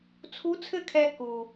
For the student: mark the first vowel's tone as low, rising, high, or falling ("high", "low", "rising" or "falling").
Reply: rising